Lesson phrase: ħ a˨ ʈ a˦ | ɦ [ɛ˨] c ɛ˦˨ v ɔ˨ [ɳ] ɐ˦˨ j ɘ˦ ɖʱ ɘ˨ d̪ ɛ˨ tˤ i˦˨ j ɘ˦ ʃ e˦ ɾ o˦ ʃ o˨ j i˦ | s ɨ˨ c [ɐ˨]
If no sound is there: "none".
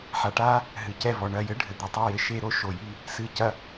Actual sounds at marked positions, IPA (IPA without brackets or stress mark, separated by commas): ɨ˨, ɳ, ɐ˨